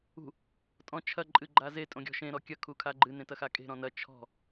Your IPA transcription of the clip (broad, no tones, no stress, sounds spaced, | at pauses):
ṳ | tʼ ɔ̃ t͡ʃʰ ɐ ǃʼ ɨ ɡ͡ǃ a z e tʼ õ ɡʲ ɔ̤ ʃ ẽ ɾ ɔ kʲ ɐ kʰ u kʰ a ɡ͡ǃ ɨ n ẽ t ɐ x a kʼ e̤ ɾ ɔ̃ n ɐ t͡ʃʰ ɔ̤